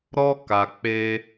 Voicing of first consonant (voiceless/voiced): voiced